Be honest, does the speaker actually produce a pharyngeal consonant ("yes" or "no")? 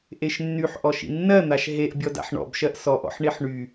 yes